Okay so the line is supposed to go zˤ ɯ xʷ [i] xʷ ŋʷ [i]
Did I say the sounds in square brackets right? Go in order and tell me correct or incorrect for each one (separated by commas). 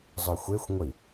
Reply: incorrect, correct